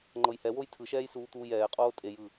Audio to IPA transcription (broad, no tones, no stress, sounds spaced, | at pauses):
ŋ͡ǃ ɤ j h ɛ w o j tʰ ɯ ʃ ɛː j s uː t̪ uː j ɛː qʼ oː tʼ e j ɯ